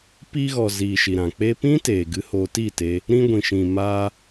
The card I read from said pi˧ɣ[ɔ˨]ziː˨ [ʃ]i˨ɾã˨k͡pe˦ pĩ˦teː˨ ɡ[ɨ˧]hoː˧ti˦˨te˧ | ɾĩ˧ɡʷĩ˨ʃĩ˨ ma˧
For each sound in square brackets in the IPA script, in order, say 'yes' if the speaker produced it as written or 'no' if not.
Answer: yes, yes, yes

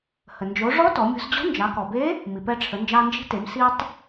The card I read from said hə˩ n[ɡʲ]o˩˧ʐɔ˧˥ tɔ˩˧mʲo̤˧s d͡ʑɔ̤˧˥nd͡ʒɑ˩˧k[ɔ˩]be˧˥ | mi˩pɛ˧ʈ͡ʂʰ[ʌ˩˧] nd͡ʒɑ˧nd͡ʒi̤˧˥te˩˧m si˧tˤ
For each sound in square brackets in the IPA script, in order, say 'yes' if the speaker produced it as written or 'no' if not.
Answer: no, yes, no

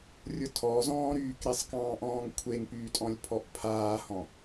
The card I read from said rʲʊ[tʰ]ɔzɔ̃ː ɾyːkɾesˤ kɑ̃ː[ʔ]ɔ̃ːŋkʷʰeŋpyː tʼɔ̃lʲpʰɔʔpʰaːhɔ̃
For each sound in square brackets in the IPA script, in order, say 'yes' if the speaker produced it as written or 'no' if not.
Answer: yes, yes

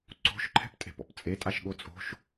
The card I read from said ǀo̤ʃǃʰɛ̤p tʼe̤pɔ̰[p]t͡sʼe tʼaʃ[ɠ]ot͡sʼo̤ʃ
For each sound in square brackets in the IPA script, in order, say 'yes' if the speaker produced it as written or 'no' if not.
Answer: yes, yes

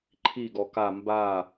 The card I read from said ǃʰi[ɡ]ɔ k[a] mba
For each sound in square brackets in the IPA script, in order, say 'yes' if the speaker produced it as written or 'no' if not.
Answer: yes, yes

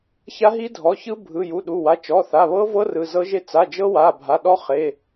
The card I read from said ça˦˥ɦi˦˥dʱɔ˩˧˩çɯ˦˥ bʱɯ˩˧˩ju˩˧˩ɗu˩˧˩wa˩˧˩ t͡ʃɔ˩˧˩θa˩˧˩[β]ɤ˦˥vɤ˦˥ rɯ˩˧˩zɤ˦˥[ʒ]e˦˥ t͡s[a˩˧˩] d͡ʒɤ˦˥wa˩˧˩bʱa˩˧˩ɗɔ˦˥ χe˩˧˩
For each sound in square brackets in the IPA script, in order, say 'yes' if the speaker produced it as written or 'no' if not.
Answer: yes, yes, yes

